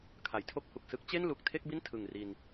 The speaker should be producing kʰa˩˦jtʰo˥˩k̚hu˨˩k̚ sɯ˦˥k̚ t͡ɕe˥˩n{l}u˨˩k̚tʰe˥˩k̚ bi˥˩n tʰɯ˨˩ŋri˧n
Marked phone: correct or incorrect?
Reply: correct